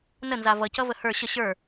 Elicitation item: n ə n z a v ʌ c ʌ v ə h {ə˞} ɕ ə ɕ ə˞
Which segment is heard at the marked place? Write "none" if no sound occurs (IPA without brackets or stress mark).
ə˞